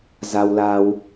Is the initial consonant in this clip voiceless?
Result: no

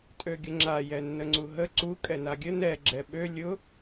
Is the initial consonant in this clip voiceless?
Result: yes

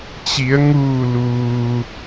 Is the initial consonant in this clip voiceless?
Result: yes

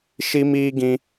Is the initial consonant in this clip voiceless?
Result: yes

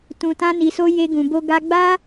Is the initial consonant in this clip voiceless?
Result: yes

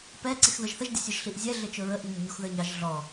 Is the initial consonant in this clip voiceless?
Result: yes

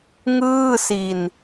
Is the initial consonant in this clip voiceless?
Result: no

